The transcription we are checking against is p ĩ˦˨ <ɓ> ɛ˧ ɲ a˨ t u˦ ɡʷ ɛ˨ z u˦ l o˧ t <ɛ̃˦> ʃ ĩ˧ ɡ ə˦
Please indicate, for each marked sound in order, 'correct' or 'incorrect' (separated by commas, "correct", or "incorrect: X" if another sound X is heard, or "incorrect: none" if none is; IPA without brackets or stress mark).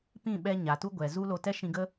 correct, incorrect: ɛ˦